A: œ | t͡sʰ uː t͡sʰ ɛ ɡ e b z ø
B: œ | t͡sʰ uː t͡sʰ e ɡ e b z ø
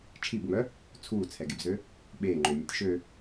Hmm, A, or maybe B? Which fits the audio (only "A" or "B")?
A